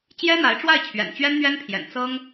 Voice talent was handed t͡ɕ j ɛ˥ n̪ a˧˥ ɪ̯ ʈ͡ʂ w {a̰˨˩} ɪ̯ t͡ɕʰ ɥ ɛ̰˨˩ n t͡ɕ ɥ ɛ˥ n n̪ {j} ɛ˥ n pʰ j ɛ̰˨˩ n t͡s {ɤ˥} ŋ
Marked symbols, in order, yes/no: no, no, yes

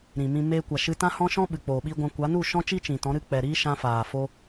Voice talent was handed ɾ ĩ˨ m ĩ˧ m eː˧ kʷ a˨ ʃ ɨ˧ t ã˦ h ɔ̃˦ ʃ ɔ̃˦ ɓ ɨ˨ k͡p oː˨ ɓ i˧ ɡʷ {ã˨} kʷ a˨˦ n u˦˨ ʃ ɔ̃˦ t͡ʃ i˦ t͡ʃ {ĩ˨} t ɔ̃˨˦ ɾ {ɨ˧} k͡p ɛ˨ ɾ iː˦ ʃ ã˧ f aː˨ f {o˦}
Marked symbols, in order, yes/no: no, yes, yes, yes

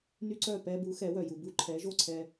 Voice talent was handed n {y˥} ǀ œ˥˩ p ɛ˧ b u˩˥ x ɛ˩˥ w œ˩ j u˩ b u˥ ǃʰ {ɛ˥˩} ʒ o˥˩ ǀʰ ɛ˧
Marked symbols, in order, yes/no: yes, no

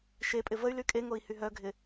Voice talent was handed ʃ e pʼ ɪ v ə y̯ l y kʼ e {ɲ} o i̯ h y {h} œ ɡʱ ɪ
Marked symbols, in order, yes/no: no, no

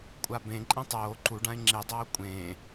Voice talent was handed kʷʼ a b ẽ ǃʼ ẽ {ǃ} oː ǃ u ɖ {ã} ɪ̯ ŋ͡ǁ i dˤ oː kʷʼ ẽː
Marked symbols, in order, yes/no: no, yes

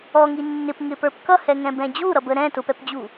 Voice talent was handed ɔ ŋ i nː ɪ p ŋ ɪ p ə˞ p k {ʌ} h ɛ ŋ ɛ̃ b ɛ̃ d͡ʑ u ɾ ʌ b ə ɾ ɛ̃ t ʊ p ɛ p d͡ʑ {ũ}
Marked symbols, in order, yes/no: yes, no

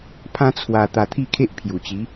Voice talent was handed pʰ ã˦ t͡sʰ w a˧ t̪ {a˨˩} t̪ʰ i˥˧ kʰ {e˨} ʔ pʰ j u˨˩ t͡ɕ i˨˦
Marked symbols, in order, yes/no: no, no

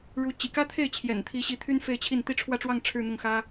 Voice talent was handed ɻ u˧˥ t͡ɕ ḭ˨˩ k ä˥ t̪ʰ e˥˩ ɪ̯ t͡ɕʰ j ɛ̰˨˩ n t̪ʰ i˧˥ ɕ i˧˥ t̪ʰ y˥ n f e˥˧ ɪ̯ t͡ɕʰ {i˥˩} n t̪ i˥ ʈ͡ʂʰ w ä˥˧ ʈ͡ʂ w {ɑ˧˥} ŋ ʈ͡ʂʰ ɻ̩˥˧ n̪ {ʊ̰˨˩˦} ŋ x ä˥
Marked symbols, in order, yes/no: yes, no, no

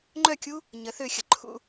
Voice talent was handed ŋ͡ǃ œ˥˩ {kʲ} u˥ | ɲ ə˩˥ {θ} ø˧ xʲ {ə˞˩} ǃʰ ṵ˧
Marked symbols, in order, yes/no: yes, yes, no

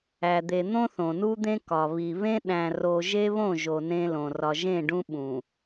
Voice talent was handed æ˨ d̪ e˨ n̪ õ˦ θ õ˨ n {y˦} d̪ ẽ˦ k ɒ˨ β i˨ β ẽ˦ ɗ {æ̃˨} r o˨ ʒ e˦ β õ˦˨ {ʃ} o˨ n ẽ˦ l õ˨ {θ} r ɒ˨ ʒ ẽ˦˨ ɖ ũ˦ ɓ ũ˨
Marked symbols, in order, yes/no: no, yes, no, no

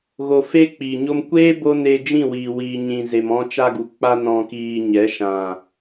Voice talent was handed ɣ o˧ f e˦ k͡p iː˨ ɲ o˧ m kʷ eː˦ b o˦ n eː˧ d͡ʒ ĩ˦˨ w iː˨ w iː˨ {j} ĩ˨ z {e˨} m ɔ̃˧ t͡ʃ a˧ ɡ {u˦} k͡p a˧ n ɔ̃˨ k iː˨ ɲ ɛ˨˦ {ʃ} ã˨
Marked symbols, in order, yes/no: no, yes, no, yes

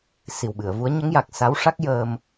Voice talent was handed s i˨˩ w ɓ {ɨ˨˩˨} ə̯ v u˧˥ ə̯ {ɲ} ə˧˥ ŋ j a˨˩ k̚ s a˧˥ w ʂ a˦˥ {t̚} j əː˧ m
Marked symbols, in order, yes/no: yes, yes, no

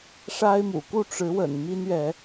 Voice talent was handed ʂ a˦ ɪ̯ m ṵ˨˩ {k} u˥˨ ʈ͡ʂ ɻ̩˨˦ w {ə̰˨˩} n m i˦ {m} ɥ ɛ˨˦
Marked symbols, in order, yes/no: yes, yes, no

